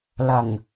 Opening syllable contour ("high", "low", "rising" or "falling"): low